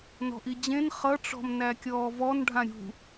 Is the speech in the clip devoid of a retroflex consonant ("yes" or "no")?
no